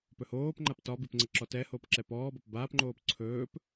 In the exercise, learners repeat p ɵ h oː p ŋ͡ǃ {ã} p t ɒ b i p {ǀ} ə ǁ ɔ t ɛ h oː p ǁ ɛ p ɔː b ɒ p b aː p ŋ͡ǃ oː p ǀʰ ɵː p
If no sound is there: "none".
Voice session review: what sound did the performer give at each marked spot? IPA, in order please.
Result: a, ŋ͡ǀ

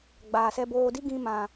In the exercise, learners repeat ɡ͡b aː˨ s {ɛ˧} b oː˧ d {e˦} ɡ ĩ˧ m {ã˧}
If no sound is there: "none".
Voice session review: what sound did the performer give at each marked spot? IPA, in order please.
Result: ɛ˧, i˦, ã˨

